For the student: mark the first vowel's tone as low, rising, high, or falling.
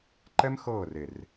high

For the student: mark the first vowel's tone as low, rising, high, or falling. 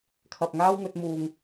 low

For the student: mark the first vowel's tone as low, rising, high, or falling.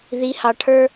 rising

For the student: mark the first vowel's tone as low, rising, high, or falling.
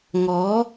rising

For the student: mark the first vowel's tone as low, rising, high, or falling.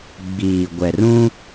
low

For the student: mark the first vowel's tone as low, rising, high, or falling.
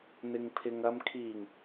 low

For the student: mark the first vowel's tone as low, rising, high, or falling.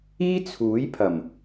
high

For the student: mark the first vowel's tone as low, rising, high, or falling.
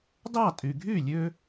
falling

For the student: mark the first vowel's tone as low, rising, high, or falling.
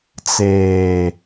low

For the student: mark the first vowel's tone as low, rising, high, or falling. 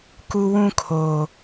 high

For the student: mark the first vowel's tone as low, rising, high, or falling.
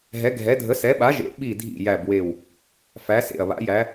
rising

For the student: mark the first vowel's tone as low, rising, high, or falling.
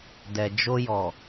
low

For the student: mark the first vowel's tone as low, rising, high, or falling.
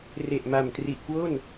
low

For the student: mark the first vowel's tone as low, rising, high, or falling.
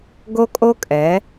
high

